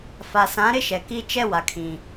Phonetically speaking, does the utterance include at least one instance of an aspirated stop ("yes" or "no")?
yes